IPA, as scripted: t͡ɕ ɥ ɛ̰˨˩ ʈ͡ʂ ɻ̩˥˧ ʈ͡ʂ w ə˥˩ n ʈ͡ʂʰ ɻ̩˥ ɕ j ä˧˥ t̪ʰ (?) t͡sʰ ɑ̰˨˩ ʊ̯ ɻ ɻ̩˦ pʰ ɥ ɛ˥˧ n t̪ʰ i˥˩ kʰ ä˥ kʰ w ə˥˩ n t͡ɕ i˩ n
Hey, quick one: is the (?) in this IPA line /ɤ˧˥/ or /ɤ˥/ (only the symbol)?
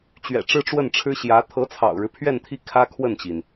ɤ˧˥